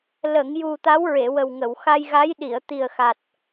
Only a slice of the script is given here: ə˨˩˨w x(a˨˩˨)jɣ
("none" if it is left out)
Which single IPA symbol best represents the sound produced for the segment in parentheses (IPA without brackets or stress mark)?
a˧